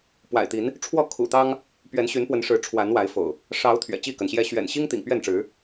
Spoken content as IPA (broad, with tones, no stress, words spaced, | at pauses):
pwa̰˨˩ɪ̯t̪i˨˦n | ʈ͡ʂʰwɔ˥˨ kʰṵ˨˩t̪ɑ˦ŋ | pɥɛ˨˦nɕy˨˦npwə˨˦nʂɻ̩˨˦ ʈ͡ʂʰwa˨˦n wa˨˦ɪ̯fo̰˨˩ʊ̯ | ʂɑ˨˦ʊ̯ t̪ʰɥɛ̰˨˩t͡ɕi˥˨kə˩nɕjɛ˦ ɕɥɛ̰˨˩nɕi˦ŋt̪ḭ˨˩ŋ pɥɛ˥˨nʈ͡ʂɻ̩˨˦